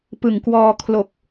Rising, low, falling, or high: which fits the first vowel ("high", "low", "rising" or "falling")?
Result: low